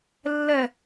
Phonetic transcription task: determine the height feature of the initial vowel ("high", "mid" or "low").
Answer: mid